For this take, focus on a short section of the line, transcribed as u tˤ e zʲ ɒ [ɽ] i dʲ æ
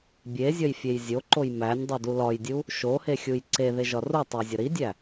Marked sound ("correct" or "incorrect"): incorrect